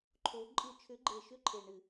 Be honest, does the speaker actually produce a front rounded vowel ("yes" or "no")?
yes